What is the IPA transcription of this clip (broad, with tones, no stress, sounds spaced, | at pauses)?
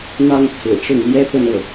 n̪ ɑ˥ ŋ t͡sʰ ɹ̩˨˩ ʈ͡ʂ ʊ˥˩ ŋ l j ɛ˥ p ə˥˧ n ɤ˥˩